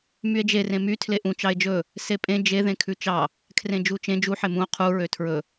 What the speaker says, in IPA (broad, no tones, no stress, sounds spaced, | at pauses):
m y e̯ d͡ʒ e r ẽ m y tʰ l e ʔ ũ t͡ʃ ɑ e̯ d͡ʒ ɵ | s e pʼ ẽ d͡ʒ e ð ẽ kʰ ʉ t͡ʃ ɑ | kʰ r ẽ d͡ʒ u t͡ʃ ẽ d͡ʒ u ħ e m ũ o̯ qʰ u ɹ ø tʰ ɹ ɵ